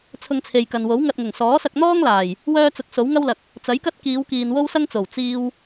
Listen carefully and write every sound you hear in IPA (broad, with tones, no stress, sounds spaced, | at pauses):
t͡sʰ ʊ˧ ŋ t͡sʰ e˨ j k ɐ˨ n w o˨˥ w ŋ ɐ˧ t̚ ŋ ʊ˨˩ ŋ s ɔː˨˥ s ɐ˧ k̚ n̪ ɔː˥ ŋ l aː˨˩ j | w œː˥ t͡s ʊ˧ k̚ s o˨˥ w ŋ ɐ˥ w l ɐ˨ k̚ | t͡s ɐ˨˥ j k ɐ˥ t̚ k iː˨˧ w k iː˨ n w o˥ w s ɐ˥ ŋ t͡s o˨˩ w t͡s iː˧ w